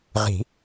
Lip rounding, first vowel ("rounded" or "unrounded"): unrounded